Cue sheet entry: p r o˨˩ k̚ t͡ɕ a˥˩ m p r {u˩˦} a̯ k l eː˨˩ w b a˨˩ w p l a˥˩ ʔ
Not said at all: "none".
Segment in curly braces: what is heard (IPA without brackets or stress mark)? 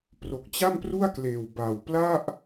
u˥˩